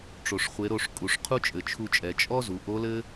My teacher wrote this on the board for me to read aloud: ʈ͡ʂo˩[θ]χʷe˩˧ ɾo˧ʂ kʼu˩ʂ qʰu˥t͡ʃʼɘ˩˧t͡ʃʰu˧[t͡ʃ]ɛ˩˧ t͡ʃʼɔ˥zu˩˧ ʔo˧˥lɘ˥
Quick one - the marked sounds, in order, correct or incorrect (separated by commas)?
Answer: incorrect, incorrect